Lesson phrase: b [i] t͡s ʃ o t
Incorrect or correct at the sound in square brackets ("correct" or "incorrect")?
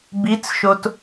correct